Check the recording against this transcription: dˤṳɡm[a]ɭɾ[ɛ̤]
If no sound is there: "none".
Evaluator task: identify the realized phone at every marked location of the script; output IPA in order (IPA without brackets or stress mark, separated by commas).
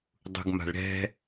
a̤, ɛ̤